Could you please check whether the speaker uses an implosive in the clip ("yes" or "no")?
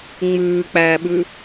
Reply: yes